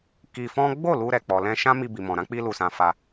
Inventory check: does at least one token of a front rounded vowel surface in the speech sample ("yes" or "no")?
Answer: no